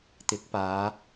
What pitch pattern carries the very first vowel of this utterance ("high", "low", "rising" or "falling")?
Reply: rising